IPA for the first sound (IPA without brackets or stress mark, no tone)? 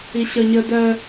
i